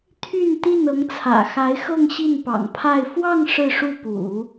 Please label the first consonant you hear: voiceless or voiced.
voiceless